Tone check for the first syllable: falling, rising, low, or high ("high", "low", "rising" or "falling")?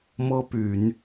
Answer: high